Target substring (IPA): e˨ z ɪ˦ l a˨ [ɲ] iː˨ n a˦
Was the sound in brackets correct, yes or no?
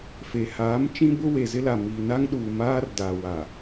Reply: no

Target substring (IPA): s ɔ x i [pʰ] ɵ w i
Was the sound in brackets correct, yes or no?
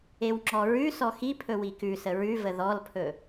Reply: yes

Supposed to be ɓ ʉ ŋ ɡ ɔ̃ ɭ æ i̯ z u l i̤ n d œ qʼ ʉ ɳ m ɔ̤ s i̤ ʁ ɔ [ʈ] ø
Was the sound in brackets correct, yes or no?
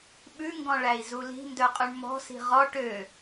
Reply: yes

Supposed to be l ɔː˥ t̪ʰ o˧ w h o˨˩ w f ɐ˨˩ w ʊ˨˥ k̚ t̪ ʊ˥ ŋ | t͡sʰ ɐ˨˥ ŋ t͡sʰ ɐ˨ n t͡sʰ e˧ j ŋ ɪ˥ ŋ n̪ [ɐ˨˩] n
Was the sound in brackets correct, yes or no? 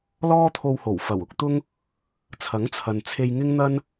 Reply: no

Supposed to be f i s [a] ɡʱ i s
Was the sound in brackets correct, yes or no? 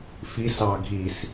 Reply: no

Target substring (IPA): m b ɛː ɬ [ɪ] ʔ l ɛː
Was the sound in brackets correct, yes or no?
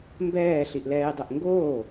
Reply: no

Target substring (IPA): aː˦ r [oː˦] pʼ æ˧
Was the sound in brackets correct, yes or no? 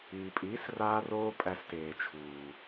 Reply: yes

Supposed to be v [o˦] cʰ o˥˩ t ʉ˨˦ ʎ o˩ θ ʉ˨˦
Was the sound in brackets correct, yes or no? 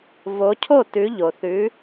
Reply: no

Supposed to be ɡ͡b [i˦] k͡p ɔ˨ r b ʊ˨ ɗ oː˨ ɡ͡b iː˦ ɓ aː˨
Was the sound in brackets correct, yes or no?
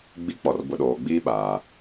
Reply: yes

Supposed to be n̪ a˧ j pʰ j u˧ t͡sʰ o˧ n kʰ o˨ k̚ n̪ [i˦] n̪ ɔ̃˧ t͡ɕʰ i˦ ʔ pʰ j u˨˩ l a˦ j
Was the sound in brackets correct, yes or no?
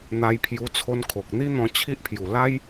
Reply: yes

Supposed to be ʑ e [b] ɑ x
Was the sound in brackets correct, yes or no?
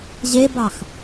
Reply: yes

